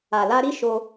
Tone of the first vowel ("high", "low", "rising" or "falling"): low